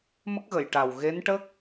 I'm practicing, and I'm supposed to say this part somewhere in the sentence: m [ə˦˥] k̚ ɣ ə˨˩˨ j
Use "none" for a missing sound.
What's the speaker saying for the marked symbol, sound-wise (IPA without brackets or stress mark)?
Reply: ə˦˥